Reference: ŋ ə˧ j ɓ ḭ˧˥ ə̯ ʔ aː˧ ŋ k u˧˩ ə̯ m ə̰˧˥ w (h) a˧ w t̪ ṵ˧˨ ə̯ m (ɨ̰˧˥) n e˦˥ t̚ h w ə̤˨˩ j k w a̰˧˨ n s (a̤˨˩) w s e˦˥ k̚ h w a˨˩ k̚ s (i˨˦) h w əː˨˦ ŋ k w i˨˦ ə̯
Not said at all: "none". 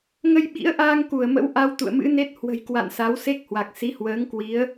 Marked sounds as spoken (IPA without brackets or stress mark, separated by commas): ʔ, ɨ̰˧˥, a˨˦, i˨˦